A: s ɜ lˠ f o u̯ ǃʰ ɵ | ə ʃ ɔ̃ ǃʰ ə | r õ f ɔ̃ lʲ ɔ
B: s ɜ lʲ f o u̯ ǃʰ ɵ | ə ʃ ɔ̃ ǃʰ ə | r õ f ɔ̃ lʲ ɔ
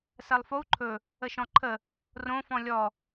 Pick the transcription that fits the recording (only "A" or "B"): A